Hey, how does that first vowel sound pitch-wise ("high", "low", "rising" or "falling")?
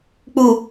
low